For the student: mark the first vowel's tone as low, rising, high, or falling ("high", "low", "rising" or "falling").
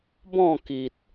falling